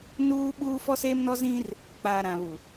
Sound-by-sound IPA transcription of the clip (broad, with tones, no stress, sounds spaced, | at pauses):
n uː˦ ɓ uː˦ f ɔ˦ s eː˦ m n ɔ˦ z ĩ˦ r | k͡p a˨ ɾ ã˨ β u˨